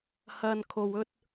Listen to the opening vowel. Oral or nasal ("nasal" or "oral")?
oral